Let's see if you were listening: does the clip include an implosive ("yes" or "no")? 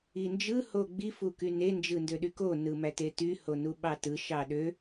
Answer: yes